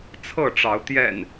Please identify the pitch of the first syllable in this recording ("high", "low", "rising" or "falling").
falling